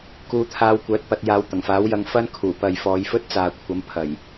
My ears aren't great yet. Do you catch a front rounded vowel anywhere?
yes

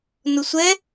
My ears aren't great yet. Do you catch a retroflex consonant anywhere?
no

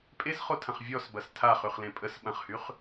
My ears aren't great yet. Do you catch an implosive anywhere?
yes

